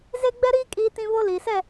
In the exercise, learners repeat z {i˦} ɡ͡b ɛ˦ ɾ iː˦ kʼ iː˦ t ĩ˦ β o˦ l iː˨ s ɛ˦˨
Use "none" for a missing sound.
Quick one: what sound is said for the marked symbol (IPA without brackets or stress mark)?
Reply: e˦